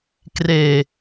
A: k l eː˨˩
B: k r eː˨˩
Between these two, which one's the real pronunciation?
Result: B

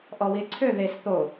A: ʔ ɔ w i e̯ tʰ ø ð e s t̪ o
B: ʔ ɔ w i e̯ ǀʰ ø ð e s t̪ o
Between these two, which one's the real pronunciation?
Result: B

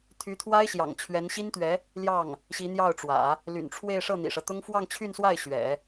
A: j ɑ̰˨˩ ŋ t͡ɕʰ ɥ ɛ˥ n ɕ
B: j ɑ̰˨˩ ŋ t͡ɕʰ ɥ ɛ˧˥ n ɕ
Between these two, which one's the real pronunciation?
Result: B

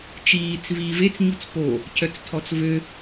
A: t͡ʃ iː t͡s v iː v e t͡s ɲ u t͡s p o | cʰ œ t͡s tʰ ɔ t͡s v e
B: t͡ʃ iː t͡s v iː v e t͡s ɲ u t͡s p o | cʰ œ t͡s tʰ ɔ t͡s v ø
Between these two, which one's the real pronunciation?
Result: B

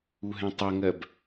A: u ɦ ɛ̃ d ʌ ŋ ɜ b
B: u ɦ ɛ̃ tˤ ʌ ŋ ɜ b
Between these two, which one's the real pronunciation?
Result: B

